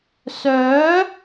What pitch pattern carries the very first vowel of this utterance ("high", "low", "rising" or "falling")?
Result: rising